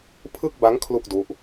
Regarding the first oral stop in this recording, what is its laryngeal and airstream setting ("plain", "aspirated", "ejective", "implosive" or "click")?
aspirated